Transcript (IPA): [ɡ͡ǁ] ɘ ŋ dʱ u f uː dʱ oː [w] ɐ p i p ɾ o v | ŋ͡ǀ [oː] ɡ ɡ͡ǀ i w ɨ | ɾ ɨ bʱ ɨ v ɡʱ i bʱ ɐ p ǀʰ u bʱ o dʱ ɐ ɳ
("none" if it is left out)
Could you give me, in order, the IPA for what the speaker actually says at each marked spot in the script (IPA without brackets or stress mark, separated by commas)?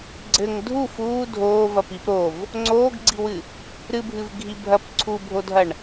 ɡ͡ǀ, v, oː